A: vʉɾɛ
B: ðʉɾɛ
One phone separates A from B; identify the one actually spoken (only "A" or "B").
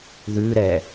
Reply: B